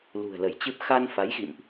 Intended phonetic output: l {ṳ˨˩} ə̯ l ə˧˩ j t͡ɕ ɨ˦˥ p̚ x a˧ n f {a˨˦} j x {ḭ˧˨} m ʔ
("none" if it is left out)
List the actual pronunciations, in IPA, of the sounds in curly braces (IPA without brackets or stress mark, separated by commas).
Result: ṳ˨˩, a˨˦, ḭ˧˨